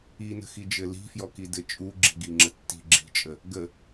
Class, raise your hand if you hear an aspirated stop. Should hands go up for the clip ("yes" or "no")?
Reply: no